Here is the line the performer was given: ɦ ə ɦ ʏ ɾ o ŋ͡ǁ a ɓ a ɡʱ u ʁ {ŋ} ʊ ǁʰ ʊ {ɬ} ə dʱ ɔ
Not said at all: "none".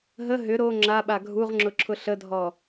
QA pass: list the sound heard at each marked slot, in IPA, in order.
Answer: ŋ͡ǁ, ɬ

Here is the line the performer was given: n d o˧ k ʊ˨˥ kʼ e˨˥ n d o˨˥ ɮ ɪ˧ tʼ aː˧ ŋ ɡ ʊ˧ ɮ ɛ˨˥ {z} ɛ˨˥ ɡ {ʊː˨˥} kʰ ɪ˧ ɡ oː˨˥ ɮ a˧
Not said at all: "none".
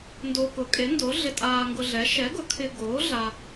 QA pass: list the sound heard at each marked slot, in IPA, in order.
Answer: ʃ, ʊ˨˥

